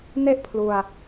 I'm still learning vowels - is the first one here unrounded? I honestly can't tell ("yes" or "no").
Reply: yes